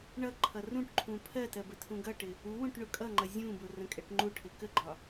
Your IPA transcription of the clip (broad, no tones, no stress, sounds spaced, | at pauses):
ɳ ʌ ǃʰ ʌ r ũ ʈ ǃʰ ũ pʰ ɜ t ɜ b ə tʰ ũ ɡ ʌ ʈ ɪ | u w ũ ʈ ɳ ʊ kʼ ʌ ŋ͡ǃ ʌ zʲ ũ b ʊ r ə̃ kʼ ɛ ʈ ŋ͡ǃ u ʈʰ ɪ k ə ɡ͡ǃ ɒ